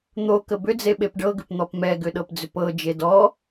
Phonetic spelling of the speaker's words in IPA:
n̪okə bʏd͡ze ɓepɖɤɡʏp n̪ɔpmɛɡʏ ɗɤpd͡zʏpɤd͡ʒe dɔ

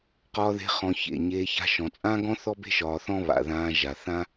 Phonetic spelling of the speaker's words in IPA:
qɒː˧ðe̤˧ χɔ̃˧çḛ˨ ɲeː˧ ça̤˧ʃɔ̃˨t͡sʼãː˦ɡɔ̃˦ θɔ˦be̤˦ ʃɒː˧θɔ̃˦ βa̰˨ðãː˧ ʒa˨θã˦

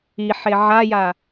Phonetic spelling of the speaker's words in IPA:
iħe ʕaja

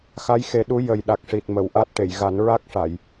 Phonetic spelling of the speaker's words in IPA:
xa˧˥jxe˨˩˦ɗu˧˥ jə˨˩j ɗa˨˩k̚ʂi˨˩t̚ mə˨˩˨wʔa˦˥t̚ʈe˨˩˨j ɣa˨˩˦nɹa˦˥k̚ʂa˨˩˨j

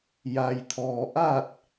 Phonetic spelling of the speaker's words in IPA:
ja˩jt̪ʰɔː˩ ʔa˥˨t̚

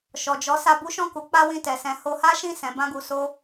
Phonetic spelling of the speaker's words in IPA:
ʃɔ˨d͡ʒɔ˨˦ sa˧bu˦ʃɔ̃˦˨ku˨˦ k͡pa˦wĩ˦˨tɛ˨sɛ̃˧ ho˧ha˦ʃĩ˦˨ sɛ̃˨˦bã˦ɡu˧so˦

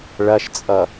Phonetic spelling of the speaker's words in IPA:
ɭɐʃt͡sʼʌ

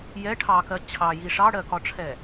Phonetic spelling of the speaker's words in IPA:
jɛ ʈʰɑkɜ t͡ɕʰɑji ʂɑɽɜkɒʈ͡ʂʰɛ

